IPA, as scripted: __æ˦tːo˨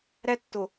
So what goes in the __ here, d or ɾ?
ɾ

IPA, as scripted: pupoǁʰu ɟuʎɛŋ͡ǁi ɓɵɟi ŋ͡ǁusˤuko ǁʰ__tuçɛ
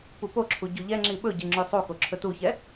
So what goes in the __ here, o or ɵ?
ɵ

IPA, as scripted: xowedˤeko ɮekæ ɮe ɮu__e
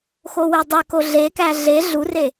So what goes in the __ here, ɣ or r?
r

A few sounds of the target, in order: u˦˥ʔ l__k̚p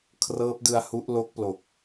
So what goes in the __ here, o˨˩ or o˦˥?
o˦˥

